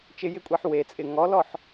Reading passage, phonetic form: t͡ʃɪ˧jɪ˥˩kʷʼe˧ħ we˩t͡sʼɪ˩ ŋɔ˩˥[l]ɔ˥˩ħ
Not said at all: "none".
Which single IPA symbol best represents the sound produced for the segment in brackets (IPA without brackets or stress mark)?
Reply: l